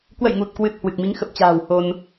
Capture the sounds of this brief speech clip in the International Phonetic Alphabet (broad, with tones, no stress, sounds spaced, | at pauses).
k w ə̰˧˨ j ŋ u˨˩ t̚ k w ɨ˨˩ t̚ h w ɨ˨˩ k̚ m i˨˦ ŋ x ə˨˩ p̚ t͡ɕ a̤ː˨˩ w h o˧ n